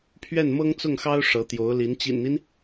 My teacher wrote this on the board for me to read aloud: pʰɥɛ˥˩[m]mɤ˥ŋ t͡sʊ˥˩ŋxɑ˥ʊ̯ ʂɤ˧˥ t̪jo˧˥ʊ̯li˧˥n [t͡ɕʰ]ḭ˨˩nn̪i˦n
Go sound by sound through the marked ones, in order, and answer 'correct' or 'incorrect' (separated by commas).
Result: incorrect, incorrect